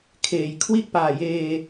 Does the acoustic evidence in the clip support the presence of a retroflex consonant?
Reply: no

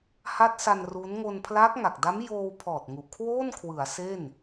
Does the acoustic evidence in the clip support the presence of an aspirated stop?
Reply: yes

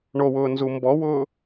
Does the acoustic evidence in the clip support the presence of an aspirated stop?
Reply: no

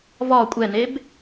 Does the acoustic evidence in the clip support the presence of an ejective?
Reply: yes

